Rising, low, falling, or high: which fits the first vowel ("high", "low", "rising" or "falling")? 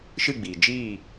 falling